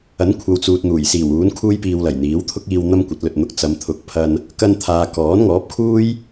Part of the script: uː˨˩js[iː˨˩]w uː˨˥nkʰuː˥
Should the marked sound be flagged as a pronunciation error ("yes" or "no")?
no